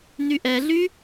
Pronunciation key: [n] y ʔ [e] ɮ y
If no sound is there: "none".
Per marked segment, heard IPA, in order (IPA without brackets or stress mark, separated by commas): n, ɛ